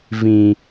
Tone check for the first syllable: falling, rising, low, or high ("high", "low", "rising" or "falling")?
low